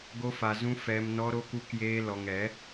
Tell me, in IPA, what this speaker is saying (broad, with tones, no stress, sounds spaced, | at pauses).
ɡ o˦ f a˧ z ũ˦ f ɛ˦ m n ɔ˦ ɾ o˦ k u˦ k j eː˦ l ɔ˧ ŋ ɛ˨˦